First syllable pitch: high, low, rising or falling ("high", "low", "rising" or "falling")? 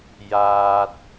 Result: low